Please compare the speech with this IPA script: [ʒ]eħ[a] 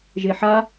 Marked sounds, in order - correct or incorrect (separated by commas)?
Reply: correct, correct